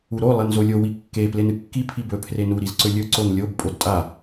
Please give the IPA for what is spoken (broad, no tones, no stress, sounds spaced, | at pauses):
u ɾ o lˠ e n z o lʲ o w i kː e p l e n ɨ kː i pʰ i b ɵ pʰ r e n u ɾ i z ǀ ɵ lʲ ɵ ǀ o n lʲ o b pʼ o d tʼ a